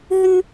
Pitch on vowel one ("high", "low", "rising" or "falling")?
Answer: high